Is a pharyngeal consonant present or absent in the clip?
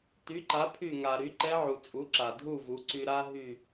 present